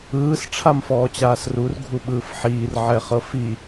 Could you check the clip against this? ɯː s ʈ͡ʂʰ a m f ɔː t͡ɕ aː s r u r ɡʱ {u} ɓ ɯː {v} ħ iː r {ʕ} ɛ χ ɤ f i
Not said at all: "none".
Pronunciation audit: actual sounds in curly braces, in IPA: u, f, ʕ

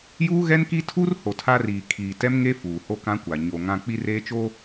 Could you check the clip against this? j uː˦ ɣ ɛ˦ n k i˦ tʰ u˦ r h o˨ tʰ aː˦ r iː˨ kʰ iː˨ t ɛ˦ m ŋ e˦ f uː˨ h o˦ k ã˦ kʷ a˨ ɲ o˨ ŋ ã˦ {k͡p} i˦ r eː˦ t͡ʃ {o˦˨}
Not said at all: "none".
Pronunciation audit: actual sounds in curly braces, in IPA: k͡p, o˦

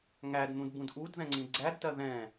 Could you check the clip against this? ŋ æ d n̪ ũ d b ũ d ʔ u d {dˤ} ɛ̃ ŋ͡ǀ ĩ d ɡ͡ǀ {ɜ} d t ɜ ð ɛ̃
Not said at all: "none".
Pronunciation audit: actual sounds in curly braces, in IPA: ð, æ

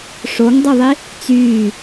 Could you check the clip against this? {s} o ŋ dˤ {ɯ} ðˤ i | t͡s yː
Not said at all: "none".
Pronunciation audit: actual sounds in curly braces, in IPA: ʂ, ɯ

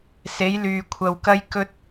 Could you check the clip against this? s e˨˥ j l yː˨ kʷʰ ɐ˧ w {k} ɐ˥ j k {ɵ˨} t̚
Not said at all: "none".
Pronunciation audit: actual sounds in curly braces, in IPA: k, ɵ˥

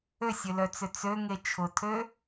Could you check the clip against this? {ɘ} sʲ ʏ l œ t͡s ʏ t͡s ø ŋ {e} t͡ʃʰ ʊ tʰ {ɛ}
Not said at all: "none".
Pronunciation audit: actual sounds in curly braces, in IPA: ø, e, ø

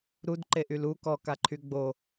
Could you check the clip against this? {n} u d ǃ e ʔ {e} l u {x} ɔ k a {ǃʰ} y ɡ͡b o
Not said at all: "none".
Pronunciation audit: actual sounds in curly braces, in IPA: ɾ, y, k, ǃʰ

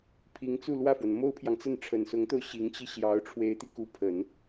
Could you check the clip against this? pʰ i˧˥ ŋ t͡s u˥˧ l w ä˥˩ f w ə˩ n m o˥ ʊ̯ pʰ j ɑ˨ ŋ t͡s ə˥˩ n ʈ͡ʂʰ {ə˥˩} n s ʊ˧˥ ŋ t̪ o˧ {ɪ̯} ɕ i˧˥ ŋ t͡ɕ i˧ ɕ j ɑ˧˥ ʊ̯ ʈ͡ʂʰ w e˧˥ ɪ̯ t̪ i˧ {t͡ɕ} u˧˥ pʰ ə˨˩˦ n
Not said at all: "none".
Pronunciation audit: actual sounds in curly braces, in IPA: ə˨˩, ʊ̯, k

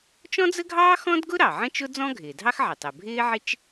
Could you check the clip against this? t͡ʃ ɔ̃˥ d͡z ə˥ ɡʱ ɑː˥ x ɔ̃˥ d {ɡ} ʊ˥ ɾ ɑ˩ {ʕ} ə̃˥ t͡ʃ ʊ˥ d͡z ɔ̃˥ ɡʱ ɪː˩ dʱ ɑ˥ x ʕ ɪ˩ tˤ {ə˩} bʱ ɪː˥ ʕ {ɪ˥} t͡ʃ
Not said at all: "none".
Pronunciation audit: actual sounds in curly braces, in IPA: ɡ, ʕ, ə˩, ɪ˥

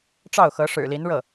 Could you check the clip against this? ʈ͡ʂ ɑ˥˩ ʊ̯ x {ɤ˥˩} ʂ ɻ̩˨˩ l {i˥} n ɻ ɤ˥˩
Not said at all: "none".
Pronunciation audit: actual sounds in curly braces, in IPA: ɤ˧˥, i˧˥

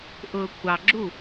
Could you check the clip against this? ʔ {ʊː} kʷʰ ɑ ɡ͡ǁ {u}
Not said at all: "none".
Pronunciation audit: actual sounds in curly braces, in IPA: ʊː, u

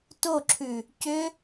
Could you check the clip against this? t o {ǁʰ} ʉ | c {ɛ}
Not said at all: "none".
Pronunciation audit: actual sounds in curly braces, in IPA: ǁʰ, ʏ

